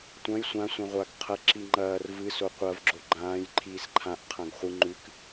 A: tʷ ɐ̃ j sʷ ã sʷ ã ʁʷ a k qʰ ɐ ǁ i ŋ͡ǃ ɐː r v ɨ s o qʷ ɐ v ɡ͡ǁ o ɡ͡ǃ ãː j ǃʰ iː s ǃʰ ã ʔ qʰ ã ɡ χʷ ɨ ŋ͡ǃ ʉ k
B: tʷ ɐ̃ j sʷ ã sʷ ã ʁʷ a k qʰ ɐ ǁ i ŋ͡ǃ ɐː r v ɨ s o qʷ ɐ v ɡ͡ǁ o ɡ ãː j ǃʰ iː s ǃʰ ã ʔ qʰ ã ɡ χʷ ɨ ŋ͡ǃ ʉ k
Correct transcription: A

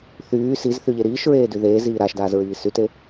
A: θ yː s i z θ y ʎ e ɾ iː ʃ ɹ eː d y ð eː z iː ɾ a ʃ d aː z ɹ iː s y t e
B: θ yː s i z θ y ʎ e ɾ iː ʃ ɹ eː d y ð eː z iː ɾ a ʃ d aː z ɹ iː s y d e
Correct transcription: A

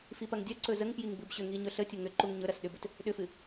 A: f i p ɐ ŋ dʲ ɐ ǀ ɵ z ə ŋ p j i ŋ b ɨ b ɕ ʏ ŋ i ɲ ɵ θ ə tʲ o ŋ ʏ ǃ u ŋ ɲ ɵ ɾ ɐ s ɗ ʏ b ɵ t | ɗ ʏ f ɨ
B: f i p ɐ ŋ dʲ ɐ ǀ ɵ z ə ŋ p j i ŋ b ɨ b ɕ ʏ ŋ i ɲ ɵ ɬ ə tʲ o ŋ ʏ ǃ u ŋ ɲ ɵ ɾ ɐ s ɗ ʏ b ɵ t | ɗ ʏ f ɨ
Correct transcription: B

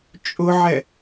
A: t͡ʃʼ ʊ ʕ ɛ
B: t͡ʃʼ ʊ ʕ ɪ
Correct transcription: A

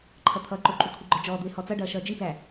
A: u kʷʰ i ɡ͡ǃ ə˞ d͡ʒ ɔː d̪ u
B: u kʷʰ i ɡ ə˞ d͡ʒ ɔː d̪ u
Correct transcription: A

